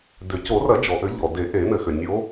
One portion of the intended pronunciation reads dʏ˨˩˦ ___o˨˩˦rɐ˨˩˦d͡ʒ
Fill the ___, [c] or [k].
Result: c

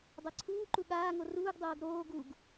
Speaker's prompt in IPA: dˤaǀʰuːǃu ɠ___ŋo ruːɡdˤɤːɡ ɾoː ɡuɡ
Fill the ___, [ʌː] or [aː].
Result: aː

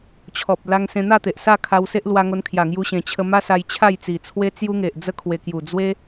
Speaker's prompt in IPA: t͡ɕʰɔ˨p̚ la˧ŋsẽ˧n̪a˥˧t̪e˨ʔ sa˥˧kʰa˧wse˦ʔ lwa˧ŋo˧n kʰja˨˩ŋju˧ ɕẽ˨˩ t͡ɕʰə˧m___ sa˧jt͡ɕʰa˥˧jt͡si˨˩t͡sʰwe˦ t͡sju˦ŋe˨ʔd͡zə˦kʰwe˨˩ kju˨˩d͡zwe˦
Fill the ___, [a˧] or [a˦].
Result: a˦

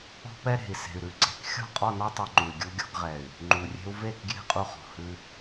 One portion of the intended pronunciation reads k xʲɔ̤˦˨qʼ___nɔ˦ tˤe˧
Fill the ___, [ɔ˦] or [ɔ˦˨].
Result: ɔ˦˨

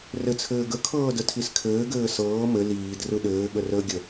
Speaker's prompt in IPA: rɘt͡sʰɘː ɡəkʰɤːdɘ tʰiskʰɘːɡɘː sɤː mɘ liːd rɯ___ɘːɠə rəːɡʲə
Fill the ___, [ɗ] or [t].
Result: ɗ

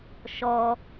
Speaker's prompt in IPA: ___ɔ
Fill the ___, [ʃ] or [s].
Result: ʃ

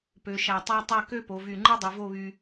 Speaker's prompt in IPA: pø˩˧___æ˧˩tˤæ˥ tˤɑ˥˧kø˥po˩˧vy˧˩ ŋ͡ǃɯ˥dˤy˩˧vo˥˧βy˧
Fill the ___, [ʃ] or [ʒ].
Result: ʃ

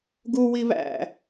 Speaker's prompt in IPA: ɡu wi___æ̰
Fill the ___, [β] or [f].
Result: β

